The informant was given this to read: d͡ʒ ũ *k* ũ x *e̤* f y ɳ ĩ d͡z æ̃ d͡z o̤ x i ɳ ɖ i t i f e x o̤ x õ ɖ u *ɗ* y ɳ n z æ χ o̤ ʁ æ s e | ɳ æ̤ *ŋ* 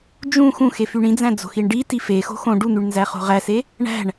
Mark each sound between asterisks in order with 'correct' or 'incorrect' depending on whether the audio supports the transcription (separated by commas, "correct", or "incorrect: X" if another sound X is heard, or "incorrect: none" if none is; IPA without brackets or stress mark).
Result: incorrect: x, incorrect: e, incorrect: n̪, incorrect: ɳ